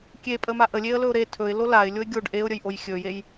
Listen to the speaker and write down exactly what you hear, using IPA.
kʲ e pʼ ə m a ʔ ə lʲ e ə̯ l ɵ ʊ̯ ɾ e tʰ ɵ ɪ̯ l o l a ɪ̯ lʲ o ɪ̯ ɡʲ o ɖ ʔ e ʊ̯ ɾʲ ə j ʔ o j xʲ ɵ j e j

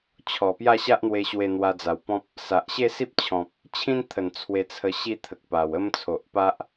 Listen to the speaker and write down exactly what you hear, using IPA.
t͡ɕʰ ɔ˨˩ p j a˥˧ ɕ a˦ ʔ n̪ w e˧ ɕ w e˧ n̪ w a˧ d͡z a˨˩ w p ɔ̃˦ p̚ | s a˨ ʔ ɕ e˥˧ s i˦ p̚ t͡ɕʰ ɔ̃˨ p̚ | t͡ɕʰ ĩ˦ n t̪ʰ ə˨˩ n t͡sʰ w e˧ t͡sʰ ə˧ ɕ i˥˧ t̪ʰ ə˨ k̚ p a˨˩ w ə˦ m t͡sʰ o˨ ʔ p a˦ ʔ

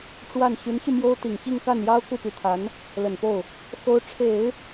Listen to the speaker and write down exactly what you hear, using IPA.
ʈ͡ʂ w a˥˩ n ɕ y˧˥ n ɕ y˧ m j o˥ ʊ̯ t̪ i˨˩ ŋ t͡ɕ i˥˧ ŋ k a˥˩ n j ɑ˥ ʊ̯ k u˥˩ p y˧˥ t̪ʰ a˧˥ n | l ə˨˩ n p o˥˩ ʊ̯ | x o˧˥ ʊ̯ ʈ͡ʂʰ e˨˩˦ ɪ̯

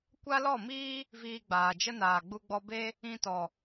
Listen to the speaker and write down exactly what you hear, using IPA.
kʷ a˦ l ɔ˦˨ m iː˦ | v iː˧ ɡ͡b aː˨ d͡ʒ ə˦ n aː˨ ɡ͡b u˧ ɡ͡b ɔ˧ b e˦ | ĩ˧ t ɔ˨

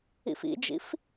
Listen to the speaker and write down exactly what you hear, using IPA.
ḭ f ḭ d͡ʒ ḭ f

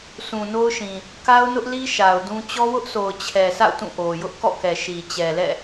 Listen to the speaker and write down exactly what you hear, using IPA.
s ũ˨ n o˦ ʊ̯ ʃ ĩ˨ | k a˦ ʊ̯ n ʊ˦ ʔ l i˦ ʃ a˨ ʊ̯ d ũ˦ t͡ɕ ɔ˦ w ʊ˦ ʔ s o˨ ʊ̯ t͡ɕʰ ɛ˨ sʰ a̰˦˨ ʊ̯ t ũ˦˨ ʔ o˨ j ʊ˦ ʔ k ɔ̰˦˨ k ɛ˨ ʃ i˨ t͡ɕ ɛ˨ l ɛ̰˦˨

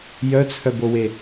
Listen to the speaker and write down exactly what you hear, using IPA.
j œ t͡sʰ œ b o w e

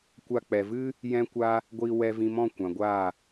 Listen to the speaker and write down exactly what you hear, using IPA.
kʷ a˧ k͡p ɛ˨ v ɨ˦ | j ɛ̃˦ kʷ a˦ | ɡʷ iː˧ w ɛ˧ v ĩ˧ m ɔ̃˦˨ kʷ ã˨ ɡʷ aː˦˨

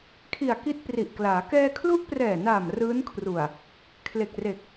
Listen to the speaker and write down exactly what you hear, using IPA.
kʰ i˨˩ a̯ k i˦˥ t̚ p r i˨˩ ʔ k l aː˩˦ k ɛː˧ kʰ l u˦˥ ʔ p r ɛː˨˩ n aː˨˩ m r ɯː˦˥ n kʰ r u˨˩ a̯ | kʰ l e˨˩ k̚ r e˨˩ k̚

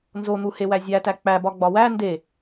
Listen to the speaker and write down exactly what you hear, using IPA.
n z o n̪ u h e w æ zʲ æ t æ k͡p æ b ɒ ɡ͡b ɒ w æ n d e

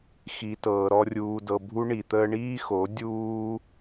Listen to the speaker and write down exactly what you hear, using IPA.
x i˨ t ɤː˨ ɾ ɔ˧ rʲ uː˨ d ɤ˨ bʱ u˧ ɳ i˨ t̪ əː˧ ɳ iː˦ x o˨˦ dʲ uː˧

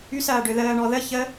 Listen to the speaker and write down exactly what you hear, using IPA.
y s ɐː ɖ ø ð əː ɳ ɔ ð ə ç ə

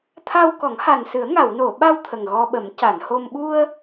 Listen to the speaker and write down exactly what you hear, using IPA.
t̪ʰ a˧ w k ɔ˨˩˦ ŋ h a˨˩ n s ɨ˨˩˦ ə̯ ŋ a˨˩˨ w n o˨˩˨ ɓ a˧ w t̪ʰ ə˨˩ ŋ ɣ ɔ˧ ɓ ə˨˩˦ m c a˨˩˨ n h o˧ m ɓ u˧ ə̯

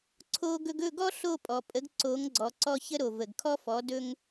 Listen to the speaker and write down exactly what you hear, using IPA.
ǀʰ o˧ ɡ ɵ˧ ɡ ɵ˥˩ ɡ ɔ˥ ɬ o˥˩ pʼ ɔ˩ pʼ ə˩˥ ɡ ǀ o˩˥ ŋ ɡ͡ǀ ɔ˩ ǀ ɔ˧ ç ə˥ ɾ o˩ v ə˩ ɡ kʰ ɔ˥ f ɔ˩˥ d ɵ˥ ŋ

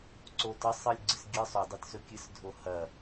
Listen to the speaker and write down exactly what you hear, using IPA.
ǀ o t ɐ sˤ ɨ lʲ ɡ͡ǀ ɨ s ɡʲ ɨ sˤ ʉ dˤ e t s ɵ kʲ ɨ s dʱ o h ɐ

